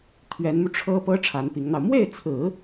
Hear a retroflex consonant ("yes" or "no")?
yes